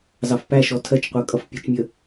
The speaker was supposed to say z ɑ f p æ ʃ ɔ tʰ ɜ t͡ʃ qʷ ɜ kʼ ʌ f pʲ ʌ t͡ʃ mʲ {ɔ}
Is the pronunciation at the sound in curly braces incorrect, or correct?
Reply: incorrect